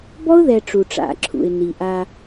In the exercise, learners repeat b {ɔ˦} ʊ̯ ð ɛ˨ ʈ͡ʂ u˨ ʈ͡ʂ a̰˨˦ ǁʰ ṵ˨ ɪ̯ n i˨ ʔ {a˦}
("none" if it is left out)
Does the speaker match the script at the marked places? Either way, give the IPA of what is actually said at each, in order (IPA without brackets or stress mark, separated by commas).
ɔ˦, a˦